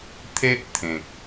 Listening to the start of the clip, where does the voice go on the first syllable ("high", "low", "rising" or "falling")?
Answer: high